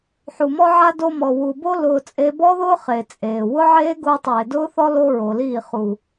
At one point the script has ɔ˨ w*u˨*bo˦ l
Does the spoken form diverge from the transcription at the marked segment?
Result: no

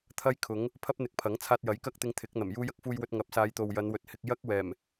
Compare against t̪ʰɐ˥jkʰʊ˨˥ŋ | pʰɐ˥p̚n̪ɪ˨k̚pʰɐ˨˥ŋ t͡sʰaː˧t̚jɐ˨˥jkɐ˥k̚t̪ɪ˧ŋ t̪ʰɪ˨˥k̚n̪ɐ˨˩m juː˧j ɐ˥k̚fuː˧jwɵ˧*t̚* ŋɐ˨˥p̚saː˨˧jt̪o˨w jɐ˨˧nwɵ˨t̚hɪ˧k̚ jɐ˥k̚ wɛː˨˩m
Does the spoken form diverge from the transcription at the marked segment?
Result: no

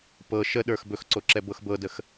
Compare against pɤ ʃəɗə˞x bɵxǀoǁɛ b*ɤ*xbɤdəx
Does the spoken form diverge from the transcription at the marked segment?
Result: no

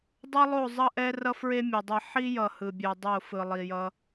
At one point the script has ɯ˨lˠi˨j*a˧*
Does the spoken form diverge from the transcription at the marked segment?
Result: yes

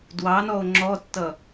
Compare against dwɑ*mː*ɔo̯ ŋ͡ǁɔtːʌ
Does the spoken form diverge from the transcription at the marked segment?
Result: yes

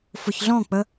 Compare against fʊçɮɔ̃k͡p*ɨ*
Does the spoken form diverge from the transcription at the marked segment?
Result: yes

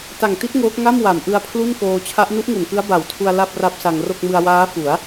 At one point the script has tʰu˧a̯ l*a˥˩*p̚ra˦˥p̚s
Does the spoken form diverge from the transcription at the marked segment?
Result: no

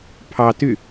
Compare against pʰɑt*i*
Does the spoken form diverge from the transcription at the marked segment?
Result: yes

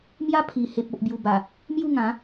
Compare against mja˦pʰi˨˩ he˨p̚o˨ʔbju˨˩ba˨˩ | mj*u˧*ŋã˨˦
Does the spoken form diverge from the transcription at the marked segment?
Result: yes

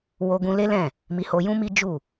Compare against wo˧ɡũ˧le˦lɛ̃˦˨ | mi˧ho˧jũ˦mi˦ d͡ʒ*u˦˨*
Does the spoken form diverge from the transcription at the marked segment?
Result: no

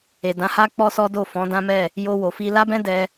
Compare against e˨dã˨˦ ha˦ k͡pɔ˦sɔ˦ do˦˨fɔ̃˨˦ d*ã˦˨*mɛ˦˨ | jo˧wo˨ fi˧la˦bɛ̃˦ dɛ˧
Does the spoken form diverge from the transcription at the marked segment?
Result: yes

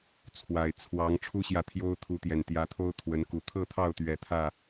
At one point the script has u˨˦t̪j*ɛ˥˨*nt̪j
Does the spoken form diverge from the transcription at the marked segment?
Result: yes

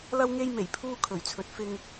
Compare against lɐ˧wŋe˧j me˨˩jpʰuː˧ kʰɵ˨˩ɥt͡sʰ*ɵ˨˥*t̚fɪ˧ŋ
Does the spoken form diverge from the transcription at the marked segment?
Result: yes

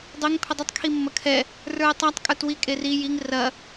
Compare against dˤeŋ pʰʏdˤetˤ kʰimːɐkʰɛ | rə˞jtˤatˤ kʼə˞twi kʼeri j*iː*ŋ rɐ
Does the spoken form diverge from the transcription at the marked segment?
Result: yes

